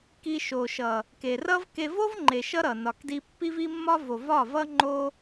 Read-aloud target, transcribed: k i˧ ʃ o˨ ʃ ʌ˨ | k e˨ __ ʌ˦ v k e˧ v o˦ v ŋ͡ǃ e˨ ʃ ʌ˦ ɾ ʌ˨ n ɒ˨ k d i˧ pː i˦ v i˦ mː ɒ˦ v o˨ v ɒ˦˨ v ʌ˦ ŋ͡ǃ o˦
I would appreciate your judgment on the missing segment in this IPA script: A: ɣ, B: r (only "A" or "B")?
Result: B